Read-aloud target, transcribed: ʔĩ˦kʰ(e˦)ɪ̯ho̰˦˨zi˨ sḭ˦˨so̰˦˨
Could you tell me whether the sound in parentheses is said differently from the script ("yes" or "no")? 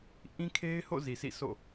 no